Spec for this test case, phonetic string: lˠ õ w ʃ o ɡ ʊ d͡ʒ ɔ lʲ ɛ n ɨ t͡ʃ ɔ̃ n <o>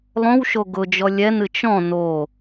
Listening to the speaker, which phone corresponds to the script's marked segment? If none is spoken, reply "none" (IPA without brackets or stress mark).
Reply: o